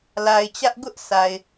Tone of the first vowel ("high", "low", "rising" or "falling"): low